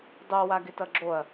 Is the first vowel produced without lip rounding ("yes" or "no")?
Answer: no